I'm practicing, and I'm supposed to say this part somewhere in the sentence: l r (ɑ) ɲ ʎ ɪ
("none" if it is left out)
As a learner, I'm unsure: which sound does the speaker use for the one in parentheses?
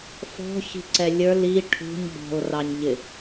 ɑ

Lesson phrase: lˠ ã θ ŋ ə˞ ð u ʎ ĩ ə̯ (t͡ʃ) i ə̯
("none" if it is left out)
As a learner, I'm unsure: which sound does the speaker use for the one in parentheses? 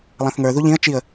t͡ʃ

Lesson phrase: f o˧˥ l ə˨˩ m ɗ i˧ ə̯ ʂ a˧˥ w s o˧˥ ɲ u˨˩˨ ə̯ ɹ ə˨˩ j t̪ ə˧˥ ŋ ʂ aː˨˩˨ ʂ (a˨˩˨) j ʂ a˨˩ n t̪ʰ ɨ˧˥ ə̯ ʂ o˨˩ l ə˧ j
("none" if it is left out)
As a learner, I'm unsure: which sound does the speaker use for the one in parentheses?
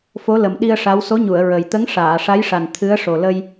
a˧˥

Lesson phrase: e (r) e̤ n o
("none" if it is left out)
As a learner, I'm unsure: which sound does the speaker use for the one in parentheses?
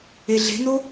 ɮ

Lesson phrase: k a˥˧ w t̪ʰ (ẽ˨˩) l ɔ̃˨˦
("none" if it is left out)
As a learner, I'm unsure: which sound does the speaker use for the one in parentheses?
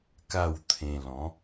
ẽ˧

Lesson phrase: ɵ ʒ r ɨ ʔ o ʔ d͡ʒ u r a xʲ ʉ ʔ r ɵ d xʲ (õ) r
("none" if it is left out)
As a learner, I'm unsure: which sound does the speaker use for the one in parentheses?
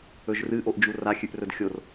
o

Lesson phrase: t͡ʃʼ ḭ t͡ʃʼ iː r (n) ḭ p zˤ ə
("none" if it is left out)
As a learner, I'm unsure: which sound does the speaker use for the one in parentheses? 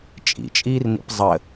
n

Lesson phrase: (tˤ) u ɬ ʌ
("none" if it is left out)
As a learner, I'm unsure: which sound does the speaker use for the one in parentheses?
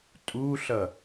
tʼ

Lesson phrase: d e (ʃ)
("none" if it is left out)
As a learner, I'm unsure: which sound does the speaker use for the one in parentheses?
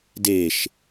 ʃ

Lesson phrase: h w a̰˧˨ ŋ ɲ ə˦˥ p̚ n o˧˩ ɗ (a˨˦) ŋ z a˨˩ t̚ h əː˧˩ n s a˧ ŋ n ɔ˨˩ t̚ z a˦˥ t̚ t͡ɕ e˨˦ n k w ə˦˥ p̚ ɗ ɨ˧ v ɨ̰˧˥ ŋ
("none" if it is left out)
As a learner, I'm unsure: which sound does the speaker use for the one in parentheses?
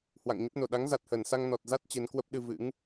a˨˦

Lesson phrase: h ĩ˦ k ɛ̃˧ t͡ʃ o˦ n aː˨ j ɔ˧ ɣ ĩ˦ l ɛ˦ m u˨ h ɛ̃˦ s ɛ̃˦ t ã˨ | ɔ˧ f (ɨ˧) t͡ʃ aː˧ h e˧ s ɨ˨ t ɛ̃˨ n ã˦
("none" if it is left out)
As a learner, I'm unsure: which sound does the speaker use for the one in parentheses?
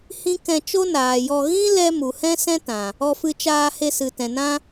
ɨ˧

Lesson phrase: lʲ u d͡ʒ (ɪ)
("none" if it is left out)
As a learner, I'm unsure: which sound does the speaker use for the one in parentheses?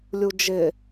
ɪ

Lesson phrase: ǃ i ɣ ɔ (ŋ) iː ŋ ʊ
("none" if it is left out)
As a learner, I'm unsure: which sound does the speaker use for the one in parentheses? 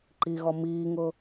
m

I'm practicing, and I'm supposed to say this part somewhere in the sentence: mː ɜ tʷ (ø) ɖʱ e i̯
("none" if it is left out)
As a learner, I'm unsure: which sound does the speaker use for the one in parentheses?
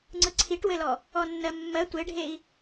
e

